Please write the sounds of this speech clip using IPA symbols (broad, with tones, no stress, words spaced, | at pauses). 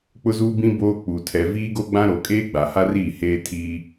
k͡pʊ˦zuː˦bĩ˦ boː˦k͡pu˨ tʰɛ˨ viː˦ɡo˦ɡ͡bã˦ ɾo˨kʼeː˦ ɡ͡ba˨ha˦riː˦˨ heː˦tʰiː˦